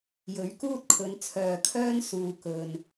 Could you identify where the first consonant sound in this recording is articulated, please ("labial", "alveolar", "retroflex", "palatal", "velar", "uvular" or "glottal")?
palatal